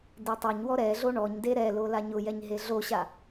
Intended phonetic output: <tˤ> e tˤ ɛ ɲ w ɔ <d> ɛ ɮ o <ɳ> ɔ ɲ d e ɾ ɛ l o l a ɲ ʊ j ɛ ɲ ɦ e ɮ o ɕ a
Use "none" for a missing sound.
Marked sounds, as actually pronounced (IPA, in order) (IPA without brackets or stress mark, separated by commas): d, ɾ, ɳ